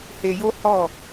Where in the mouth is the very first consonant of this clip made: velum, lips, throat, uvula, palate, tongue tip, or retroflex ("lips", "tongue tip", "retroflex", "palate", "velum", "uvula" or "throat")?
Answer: throat